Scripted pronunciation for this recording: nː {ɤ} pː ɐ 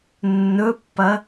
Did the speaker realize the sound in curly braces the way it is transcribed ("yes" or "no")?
no